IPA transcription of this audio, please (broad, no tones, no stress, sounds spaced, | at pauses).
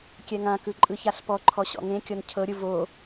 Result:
kʲ ɛ ŋ ã k ɯ ǃʼ ɯ ç a ɬ p ɔ ǃʰ ɔ ɕ ɔ̰ ŋ ẽ kʲ ɤ n cʰ ɤ ɾʲ ɯ v o